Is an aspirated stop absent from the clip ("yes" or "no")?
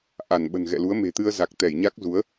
yes